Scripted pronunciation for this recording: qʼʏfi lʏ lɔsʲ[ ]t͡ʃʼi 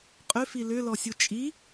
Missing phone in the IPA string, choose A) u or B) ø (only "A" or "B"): A